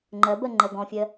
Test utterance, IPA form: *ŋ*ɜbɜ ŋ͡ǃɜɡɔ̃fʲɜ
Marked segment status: incorrect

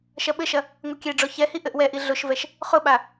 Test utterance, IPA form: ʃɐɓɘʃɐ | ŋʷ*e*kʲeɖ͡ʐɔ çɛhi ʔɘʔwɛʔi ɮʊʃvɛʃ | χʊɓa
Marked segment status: incorrect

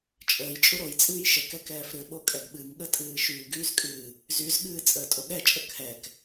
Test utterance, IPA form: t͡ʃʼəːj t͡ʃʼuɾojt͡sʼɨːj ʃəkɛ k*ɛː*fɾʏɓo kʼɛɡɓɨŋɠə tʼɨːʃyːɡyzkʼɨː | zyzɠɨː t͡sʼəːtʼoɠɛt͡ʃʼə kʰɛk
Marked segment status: correct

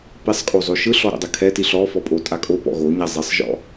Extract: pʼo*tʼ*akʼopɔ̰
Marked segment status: correct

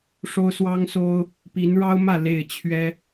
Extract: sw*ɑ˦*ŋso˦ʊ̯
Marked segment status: correct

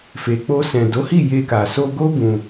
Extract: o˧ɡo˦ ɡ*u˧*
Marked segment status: incorrect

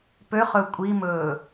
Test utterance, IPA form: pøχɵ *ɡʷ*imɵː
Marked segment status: incorrect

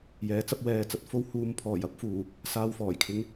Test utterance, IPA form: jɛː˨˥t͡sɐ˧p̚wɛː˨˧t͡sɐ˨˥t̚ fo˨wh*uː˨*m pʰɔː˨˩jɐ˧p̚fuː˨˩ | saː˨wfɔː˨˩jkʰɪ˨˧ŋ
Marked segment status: correct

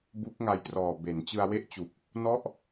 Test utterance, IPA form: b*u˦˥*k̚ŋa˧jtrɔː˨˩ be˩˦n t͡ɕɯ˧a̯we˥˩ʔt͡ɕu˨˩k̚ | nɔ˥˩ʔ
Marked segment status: correct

